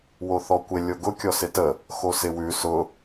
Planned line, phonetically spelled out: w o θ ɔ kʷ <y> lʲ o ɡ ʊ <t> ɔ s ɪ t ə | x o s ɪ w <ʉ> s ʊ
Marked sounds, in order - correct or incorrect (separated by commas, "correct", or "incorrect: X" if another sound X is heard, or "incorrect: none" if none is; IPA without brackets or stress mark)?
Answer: incorrect: ɪ, incorrect: kʲ, correct